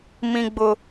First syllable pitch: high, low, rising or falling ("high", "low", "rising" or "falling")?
high